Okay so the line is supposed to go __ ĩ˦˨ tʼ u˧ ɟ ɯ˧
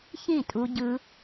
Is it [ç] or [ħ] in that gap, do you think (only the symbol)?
ç